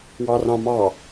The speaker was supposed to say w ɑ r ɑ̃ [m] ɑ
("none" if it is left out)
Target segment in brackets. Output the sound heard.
m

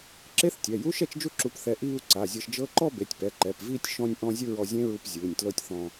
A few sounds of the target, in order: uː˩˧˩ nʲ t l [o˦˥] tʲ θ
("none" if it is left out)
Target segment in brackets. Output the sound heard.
ɤ˦˥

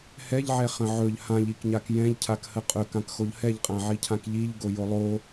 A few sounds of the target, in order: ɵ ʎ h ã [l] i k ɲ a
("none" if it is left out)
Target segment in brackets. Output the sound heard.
ʎ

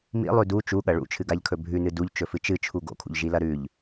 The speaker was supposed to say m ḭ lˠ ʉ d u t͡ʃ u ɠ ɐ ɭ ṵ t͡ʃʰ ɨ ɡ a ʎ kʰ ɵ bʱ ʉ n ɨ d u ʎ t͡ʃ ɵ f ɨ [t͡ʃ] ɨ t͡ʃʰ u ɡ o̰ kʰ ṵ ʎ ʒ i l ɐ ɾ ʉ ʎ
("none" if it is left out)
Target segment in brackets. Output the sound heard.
t͡ʃ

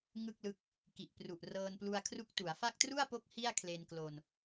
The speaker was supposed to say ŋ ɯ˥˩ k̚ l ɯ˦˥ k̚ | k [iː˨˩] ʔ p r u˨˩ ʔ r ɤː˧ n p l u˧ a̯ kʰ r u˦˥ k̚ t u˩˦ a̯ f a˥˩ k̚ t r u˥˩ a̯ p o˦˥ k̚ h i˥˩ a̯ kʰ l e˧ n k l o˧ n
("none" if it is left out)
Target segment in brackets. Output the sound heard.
i˨˩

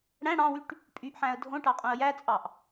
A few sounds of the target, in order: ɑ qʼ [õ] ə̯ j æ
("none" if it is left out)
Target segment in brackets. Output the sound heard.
õ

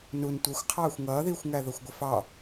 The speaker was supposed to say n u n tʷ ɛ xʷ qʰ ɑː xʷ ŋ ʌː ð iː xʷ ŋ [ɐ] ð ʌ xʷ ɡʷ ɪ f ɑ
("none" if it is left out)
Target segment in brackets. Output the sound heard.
æ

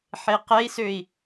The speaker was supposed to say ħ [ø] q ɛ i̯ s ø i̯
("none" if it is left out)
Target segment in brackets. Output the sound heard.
e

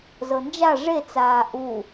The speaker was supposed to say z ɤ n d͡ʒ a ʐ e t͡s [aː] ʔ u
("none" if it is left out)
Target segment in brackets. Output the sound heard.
aː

